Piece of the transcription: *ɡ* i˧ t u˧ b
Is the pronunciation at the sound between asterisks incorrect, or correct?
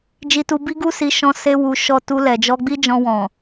incorrect